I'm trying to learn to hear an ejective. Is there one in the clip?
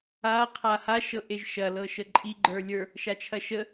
yes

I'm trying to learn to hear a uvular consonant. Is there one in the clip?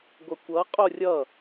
yes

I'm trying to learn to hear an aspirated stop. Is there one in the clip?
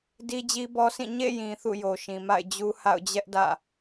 no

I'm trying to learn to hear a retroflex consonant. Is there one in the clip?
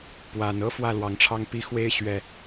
yes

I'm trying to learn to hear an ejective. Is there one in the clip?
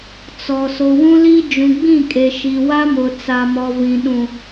yes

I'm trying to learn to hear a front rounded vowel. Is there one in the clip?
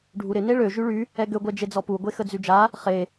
yes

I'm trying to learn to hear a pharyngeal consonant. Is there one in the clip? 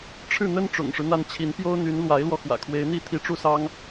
no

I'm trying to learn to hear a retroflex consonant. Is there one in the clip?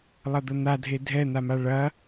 yes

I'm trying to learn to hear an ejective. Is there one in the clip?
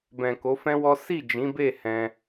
no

